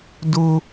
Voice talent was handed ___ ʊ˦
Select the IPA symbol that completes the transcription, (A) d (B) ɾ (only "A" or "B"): A